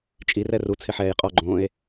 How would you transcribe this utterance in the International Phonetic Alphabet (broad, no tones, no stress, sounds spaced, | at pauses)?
t͡ʃʼ i r ɛ r u t͡sʰ ɪ ħ ɛː j qʼ ɔ ɡ͡ǃ õː e̯